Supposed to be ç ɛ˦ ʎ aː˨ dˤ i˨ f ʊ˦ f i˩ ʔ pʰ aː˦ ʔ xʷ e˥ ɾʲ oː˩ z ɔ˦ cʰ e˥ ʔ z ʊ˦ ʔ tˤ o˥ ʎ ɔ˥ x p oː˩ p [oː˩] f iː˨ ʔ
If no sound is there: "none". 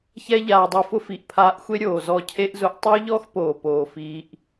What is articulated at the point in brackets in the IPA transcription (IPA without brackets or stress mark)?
oː˩